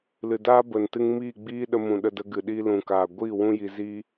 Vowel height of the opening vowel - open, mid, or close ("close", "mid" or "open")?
close